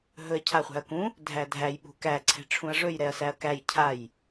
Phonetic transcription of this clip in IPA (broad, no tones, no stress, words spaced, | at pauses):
ɦɵɐ̯cʰaχʷæ̤ɐ̯kũ | dʱædʱæj ɓṳkæ ǀʰɛ̤ʈ͡ʂʰũɐ̯ʐɵj ɾɛɐ̯sæɐ̯kæj cʰaj